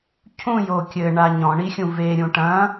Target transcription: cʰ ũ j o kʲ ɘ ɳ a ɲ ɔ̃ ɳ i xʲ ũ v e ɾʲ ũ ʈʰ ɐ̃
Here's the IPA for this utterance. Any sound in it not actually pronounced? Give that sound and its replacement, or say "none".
ʈʰ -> ʈ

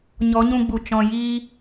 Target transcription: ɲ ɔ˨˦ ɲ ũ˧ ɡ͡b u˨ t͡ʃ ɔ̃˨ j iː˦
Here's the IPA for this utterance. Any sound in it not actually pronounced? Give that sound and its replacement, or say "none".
none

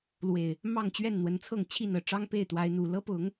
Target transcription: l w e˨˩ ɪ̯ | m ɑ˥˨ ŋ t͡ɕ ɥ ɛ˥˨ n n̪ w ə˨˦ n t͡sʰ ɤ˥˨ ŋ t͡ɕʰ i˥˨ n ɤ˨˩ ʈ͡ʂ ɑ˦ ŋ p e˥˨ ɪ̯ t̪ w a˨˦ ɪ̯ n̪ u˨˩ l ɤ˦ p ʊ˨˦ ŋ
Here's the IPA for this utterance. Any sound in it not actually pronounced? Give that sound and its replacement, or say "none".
none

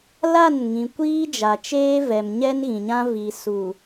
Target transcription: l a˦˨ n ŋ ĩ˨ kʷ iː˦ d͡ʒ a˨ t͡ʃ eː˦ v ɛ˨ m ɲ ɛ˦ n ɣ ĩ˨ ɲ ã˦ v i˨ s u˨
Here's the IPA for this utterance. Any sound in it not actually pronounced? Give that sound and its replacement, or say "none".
none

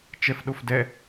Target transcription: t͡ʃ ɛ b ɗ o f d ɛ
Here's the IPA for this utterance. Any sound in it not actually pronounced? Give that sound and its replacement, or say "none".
b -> f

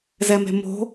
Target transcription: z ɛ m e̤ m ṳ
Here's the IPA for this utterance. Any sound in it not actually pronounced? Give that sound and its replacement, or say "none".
ṳ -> o̤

